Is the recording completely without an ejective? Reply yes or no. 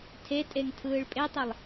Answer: no